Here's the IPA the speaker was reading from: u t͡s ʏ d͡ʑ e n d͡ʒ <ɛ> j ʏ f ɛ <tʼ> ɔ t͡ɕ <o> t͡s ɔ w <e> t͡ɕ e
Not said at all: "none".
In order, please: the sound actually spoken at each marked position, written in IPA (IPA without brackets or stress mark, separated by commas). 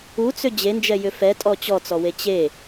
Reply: ɛ, tʼ, ɔ, e